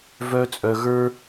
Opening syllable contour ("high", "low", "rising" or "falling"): high